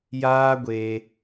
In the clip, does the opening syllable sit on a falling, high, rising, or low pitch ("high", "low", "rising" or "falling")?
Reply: high